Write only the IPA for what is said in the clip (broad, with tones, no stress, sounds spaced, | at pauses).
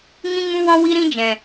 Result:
ŋ ĩ˦ ŋ ũ˦ w ɔ̃˦ w i˦ ɾ ĩ˦ d͡ʒ ɛ̃˨